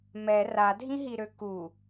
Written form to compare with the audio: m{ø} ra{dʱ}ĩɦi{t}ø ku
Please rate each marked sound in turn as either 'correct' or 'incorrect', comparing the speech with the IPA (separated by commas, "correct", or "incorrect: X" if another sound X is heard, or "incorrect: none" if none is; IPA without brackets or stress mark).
incorrect: ɛ, correct, incorrect: ɾ